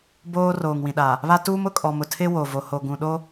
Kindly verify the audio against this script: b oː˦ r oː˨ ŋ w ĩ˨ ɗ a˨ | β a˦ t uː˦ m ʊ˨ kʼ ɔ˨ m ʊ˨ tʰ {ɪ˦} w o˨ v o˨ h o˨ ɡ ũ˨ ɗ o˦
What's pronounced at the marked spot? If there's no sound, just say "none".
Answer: ɪ˦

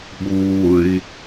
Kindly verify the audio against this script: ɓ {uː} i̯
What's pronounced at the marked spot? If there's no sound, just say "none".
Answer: uː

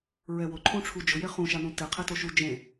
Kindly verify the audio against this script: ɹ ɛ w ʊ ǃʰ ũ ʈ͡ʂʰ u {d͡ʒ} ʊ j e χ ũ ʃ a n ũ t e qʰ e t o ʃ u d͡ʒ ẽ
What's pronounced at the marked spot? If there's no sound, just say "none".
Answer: d͡ʒ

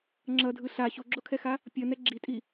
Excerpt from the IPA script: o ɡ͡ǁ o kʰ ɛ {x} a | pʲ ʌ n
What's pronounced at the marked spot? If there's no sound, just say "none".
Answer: x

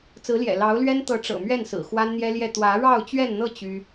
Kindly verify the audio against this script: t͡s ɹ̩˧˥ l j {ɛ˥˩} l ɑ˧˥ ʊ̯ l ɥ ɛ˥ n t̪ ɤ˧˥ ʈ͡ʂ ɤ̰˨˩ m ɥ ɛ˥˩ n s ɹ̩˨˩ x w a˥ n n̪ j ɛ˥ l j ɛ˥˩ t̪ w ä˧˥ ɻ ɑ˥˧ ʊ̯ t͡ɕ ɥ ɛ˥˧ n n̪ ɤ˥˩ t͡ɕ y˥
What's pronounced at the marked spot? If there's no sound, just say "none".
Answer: ɛ̰˨˩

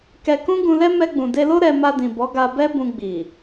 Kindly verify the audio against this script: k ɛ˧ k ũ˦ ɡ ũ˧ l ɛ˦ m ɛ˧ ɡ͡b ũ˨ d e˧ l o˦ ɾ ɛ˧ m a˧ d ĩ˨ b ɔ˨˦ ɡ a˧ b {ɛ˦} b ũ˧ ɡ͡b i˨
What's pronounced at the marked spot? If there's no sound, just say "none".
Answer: ɛ˦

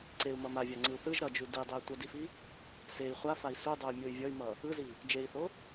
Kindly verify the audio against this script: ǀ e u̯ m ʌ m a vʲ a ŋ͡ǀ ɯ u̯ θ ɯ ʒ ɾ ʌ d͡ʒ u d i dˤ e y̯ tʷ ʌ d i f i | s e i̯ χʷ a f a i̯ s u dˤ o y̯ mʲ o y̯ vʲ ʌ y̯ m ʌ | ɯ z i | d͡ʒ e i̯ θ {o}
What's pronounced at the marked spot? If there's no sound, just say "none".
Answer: o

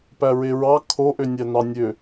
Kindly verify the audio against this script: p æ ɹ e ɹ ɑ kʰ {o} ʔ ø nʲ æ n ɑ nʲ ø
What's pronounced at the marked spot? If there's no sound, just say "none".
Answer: o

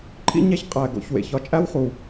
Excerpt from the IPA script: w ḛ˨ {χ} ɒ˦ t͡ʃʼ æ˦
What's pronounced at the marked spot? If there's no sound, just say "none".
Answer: ç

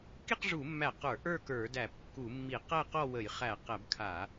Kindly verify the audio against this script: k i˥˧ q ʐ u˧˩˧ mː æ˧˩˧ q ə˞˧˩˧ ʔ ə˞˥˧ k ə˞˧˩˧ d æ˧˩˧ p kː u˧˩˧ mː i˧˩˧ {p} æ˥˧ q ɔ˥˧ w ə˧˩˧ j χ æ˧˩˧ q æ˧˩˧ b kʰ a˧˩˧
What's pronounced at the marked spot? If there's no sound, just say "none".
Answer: q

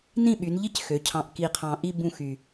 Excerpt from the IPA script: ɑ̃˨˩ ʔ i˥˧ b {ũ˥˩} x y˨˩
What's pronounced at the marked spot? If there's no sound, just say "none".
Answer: ũ˥˩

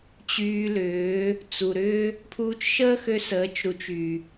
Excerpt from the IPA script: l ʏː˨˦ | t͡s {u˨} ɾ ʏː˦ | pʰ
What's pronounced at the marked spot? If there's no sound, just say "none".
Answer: u˨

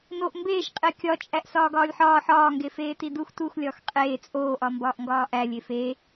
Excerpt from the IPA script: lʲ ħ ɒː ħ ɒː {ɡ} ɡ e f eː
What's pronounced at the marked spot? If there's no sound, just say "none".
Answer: ŋ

